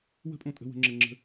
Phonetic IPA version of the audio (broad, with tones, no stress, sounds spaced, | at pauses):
w ə̤˦ pʼ õ˧ tʼ ə̤˧ w ə̤˧ ŋ͡ǁ ə˧ ŋ͡ǁ ə̤˦